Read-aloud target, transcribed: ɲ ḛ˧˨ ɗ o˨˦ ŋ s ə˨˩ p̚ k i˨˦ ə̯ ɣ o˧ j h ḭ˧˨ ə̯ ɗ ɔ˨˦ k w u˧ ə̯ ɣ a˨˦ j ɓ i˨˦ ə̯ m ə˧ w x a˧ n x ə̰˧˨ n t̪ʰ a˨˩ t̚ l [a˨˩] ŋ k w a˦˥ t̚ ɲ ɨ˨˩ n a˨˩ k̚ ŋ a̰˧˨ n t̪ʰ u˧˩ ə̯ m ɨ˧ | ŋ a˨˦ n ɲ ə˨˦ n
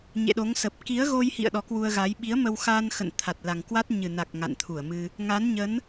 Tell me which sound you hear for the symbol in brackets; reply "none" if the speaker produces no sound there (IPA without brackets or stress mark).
a˨˩